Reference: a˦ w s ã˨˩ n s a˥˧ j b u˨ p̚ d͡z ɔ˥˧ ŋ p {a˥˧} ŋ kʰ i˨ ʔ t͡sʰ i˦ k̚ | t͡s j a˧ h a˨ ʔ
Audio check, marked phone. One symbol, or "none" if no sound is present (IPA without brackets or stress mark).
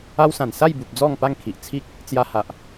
a˥˧